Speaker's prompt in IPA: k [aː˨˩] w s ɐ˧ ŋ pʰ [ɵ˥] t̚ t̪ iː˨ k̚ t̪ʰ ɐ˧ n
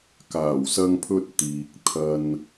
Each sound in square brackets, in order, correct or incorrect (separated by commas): correct, incorrect